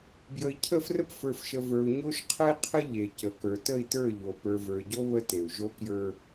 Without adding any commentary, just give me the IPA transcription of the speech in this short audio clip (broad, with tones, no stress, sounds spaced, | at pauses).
b j ə˨ i̯ cʰ ə˦˨ f r ə˦ p f ə˞˨ f ʃ ə˨ v ə˞˨ u̯ ɲ o˦ ʃ qʰ ə˦ i̯ qʰ ə˦ ʎ e˨ c ə˨˦ k ə˞˨ t ə˦˨ i̯ t ə˞˦˨ ʎ o˨ p ə˞˨ v ə˞˨ ɟ o˦ β ə˦ t e˨ u̯ ʒ o˦ k j ə˞˦